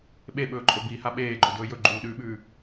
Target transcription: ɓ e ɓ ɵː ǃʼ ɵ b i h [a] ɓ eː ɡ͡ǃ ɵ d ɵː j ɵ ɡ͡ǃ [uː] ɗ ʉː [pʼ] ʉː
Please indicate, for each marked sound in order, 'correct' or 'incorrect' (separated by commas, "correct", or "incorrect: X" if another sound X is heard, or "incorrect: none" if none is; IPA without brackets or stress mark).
correct, correct, incorrect: ɓ